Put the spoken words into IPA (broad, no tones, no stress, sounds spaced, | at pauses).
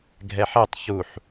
ɡʱ ɛ ħ ɛ tˤ ç u ħ